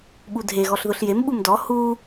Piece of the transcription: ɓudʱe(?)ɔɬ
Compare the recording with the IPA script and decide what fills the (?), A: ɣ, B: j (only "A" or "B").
A